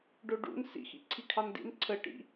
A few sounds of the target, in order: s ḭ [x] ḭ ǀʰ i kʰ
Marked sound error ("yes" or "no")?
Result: no